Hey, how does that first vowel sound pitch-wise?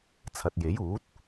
low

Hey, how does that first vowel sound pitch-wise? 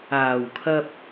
low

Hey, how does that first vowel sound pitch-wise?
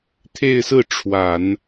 falling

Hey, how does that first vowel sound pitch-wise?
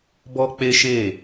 high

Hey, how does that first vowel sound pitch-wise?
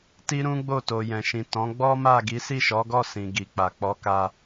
high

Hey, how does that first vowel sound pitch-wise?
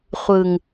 low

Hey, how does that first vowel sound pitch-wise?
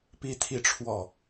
high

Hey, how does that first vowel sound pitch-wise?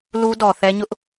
high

